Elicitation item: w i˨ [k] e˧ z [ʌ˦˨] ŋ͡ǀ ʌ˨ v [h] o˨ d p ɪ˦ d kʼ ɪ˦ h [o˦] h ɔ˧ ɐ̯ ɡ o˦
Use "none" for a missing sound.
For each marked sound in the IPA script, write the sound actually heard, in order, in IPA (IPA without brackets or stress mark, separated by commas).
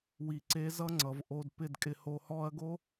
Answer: ǀ, ʌ˦, ʔ, o˦